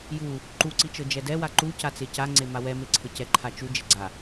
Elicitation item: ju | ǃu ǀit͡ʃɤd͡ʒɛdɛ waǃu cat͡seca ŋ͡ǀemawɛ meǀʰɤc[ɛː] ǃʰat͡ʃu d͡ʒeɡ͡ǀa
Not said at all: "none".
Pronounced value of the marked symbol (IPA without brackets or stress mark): ɛ